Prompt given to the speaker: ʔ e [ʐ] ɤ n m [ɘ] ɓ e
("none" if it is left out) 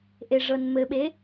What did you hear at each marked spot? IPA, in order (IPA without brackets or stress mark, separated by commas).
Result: ʐ, ɘ